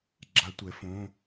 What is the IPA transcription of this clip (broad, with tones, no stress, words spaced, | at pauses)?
ɡ͡ǁa˦˥tʷɛ˨˦fõ˧˥˧